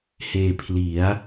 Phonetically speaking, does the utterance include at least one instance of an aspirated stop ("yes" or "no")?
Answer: yes